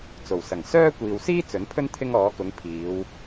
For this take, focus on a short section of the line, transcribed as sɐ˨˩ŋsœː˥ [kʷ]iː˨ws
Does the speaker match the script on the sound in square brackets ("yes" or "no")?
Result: yes